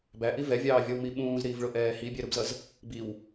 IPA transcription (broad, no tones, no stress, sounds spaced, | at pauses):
b æ ʔ i v ɛ vʲ ɑː vʲ ɔ w m i ɓ ũː z ɾ iː v ɭ ʊ ʔ ɛː h i bʲ ɛ ɾ u b z ʌ z | b i w